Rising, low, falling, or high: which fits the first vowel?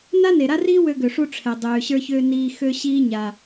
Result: high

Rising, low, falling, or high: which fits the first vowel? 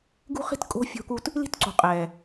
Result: high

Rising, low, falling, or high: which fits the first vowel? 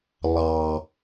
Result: low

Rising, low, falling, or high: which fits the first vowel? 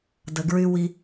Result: low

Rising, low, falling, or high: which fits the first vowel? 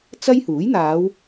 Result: high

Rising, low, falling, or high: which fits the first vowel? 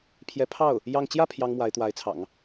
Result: rising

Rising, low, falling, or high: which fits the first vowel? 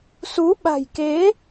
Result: rising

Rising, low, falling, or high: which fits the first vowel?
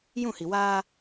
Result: falling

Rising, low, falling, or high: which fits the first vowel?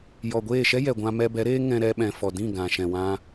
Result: low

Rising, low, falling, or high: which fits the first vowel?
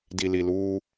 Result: low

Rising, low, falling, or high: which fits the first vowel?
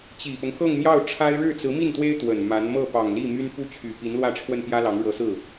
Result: low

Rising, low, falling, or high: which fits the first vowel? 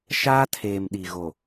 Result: high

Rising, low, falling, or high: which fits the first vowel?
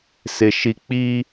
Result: low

